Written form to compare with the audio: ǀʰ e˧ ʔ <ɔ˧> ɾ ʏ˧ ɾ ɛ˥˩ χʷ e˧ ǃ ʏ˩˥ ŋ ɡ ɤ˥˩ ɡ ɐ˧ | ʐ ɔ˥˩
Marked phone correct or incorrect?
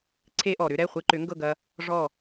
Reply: incorrect